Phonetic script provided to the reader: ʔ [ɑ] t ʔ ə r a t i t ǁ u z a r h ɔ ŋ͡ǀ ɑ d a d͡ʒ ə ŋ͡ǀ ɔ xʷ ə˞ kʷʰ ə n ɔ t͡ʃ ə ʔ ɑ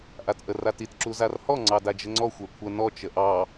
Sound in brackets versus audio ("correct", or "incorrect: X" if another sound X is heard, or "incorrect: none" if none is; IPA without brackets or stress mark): incorrect: a